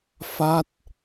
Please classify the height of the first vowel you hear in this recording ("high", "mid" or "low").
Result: low